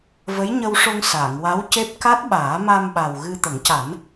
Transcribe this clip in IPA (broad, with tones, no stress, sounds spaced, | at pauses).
v ə˧˥ j ɲ ə˧ w ʂ o˧ ŋ s aː˨˩˨ ŋ w a˧˥ w c e˦˥ p̚ k a˦˥ t̚ ɓ aː˨˩˦ m a˧ m ɓ a˨˩ w ɣ ɨ˧ t̪ ə˨˩˦ ŋ c a˨˩˦ n